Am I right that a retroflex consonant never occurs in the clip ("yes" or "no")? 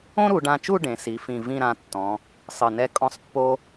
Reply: no